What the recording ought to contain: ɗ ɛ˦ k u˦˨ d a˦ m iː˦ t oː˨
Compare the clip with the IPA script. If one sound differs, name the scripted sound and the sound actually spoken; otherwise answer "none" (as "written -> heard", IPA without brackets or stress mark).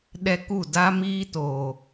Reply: none